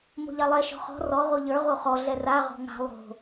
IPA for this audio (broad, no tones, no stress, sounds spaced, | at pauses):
m o̤ ʎ a lˠ ɛ ʃ ɔ̤ χ ɔ̤ r ɔ ʁ o ʎ ə˞ ʁ o χ ɔ ɮ ɛ r a ʁ ɔ̤ ŋ a̤ lˠ o̤